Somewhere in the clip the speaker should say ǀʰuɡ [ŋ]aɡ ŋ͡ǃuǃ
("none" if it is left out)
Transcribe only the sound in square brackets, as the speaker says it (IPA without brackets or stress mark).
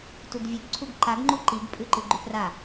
ǃ